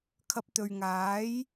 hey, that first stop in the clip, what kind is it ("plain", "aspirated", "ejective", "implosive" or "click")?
aspirated